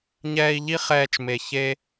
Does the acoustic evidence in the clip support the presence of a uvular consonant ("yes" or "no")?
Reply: yes